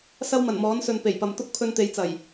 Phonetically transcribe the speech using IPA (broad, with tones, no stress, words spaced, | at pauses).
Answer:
sɐ˥wmɐ˨˩nmɔː˨˥nsɵ˨n pe˨˩jpɐ˨mt̪ʊ˥k̚ pʰɵ˧nt̪e˨˧jt͡sɐ˨˩j